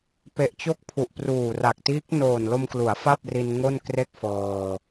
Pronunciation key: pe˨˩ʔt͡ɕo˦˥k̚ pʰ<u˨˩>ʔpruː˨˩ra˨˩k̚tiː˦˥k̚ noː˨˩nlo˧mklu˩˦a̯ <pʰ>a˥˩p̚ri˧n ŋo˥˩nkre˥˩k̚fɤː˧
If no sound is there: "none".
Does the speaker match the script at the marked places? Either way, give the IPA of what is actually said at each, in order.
u˨˩, f

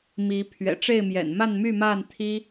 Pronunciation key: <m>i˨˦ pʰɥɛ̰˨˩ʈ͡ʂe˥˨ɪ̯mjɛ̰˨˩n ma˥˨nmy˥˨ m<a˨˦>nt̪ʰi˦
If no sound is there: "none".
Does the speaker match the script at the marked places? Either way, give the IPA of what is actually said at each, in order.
m, a˥˨

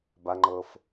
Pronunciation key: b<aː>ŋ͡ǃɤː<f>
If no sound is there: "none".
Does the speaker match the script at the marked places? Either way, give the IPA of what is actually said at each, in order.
a, f

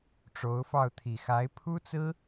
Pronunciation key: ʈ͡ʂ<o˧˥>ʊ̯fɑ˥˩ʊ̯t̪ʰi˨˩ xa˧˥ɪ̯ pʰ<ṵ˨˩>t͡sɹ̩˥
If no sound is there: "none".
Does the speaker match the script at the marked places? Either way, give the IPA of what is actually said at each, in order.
o˧˥, u˥

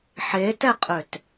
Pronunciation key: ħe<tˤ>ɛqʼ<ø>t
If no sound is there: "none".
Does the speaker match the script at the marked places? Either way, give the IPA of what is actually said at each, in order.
t, ø

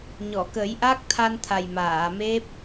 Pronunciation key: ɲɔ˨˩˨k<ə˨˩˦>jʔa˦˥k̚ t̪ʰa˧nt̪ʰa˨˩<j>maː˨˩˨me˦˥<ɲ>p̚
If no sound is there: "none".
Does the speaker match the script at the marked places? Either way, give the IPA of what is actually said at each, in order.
ə˨˩˦, j, none

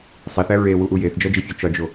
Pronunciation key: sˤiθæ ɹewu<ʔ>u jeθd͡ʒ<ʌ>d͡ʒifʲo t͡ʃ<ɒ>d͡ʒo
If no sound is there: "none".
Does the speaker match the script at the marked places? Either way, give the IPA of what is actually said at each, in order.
ʔ, ɒ, ɒ

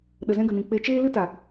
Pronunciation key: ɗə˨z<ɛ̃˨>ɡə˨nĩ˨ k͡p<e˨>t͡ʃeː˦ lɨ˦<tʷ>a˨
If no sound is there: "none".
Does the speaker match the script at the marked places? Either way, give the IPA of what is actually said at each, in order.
ɛ̃˧, e˧, t

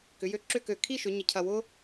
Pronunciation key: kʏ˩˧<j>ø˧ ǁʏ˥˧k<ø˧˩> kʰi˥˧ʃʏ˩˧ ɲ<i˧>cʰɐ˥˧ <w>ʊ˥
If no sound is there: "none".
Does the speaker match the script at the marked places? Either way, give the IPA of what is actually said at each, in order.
j, ø˧˩, ɪ˧, w

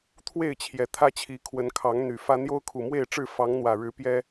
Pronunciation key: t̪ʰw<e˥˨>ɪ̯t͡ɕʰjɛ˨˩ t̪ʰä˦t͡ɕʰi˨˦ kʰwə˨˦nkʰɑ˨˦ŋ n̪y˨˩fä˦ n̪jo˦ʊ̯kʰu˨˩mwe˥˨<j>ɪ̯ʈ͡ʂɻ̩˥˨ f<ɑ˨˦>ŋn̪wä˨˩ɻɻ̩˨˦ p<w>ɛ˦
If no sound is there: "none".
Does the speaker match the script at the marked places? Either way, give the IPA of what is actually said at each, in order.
e˥˨, none, ɑ˨˦, j

